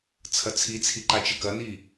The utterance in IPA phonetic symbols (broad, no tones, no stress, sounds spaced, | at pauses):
t͡sʰ ɐ t͡sʰ i t͡sʰ i ǃ a t͡ʃ ɘ k ɐ n i